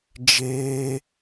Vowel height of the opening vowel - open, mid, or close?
mid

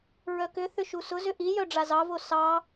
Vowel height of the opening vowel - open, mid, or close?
mid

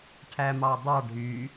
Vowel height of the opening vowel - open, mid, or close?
open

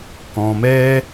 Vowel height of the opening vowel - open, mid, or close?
mid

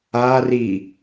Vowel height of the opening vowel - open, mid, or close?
open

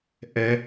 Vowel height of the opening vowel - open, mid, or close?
mid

